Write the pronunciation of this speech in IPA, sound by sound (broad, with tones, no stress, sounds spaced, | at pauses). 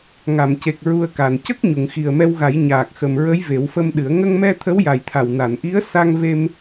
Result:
ŋ a˨˩˨ m c e˨˩ k̚ ɹ u˧ ə̯ k a˨˩ n c ə˦˥ k̚ ɲ u˨˩˨ ŋ x i˨˩ ə̯ m ɛ˧ w ɣ a˨˩˦ j ɲ aː˨˩ k̚ x ə˨˩ m ɹ ə˧˥ j v e˨˩˦ w f ə˧ m ɗ ɨ˨˩˦ ə̯ ŋ ə˧ ŋ m ɛ˧ t̪ʰ ə˧˥ w j a˨˩ j t̪ʰ a˨˩ w n a˨˩˨ n ʔ i˧˥ ə̯ s a˧ ŋ v e˧ m